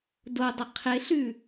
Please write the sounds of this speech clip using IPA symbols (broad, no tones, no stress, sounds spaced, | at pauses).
d o dˤ ɪ qʰ ɪ ɬ ʉ